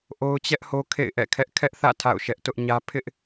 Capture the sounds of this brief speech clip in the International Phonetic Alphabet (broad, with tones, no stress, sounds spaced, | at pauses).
ʔ o˦ ʊ̯ t͡ɕ ɛ˦ ʔ h o˦ kʰ ḛ˦˨ ɪ̯ ʔ ɛ̰˦˨ kʰ ɛ˦ ʔ kʰ ɛ˦ ʔ θ ä̰˦˨ tʰ a̰˦˨ ʊ̯ ʃ ɛ˦ ʔ t ʊ˦ ʔ ɲ ä˦ pʰ ɪ˦ ʔ